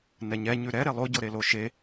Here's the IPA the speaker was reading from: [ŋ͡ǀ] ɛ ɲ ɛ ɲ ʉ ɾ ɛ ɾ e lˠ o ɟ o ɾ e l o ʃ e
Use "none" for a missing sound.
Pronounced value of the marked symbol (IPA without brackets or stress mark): n